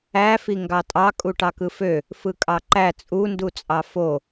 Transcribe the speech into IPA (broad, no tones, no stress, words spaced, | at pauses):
æfi ŋɡɑtʼɑkʼu ʈɑkɯfø | fɯkʼɑǃæ t͡sʼundut͡sʼɑ fo